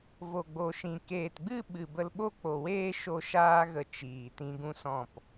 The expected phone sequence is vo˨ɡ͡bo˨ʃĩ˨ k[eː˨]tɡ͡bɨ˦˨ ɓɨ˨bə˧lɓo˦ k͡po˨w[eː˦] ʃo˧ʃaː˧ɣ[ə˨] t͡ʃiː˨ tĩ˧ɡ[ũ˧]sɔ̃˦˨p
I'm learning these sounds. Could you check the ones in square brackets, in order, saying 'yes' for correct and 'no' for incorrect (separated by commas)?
yes, yes, yes, no